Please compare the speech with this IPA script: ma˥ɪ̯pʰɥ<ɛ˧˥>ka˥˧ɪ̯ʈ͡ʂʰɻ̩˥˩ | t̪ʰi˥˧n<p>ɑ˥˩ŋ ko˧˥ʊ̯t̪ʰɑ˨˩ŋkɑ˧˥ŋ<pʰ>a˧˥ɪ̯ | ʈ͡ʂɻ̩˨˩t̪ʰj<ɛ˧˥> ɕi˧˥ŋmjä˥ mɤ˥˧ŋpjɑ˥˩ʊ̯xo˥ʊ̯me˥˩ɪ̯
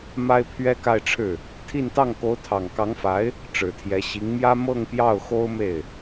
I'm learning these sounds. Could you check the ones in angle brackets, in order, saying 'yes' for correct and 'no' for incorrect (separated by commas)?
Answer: no, no, no, yes